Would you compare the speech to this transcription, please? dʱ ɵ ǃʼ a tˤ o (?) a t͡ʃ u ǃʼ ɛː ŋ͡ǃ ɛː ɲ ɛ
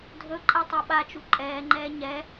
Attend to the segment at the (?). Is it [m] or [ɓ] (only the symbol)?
ɓ